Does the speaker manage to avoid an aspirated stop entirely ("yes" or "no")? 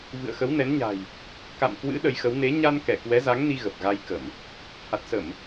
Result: yes